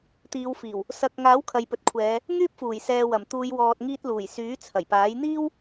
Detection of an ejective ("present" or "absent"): absent